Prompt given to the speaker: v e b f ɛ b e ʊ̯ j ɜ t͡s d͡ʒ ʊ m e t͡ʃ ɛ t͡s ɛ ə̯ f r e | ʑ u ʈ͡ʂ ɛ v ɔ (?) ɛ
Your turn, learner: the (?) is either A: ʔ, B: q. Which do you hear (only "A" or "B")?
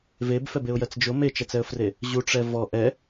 A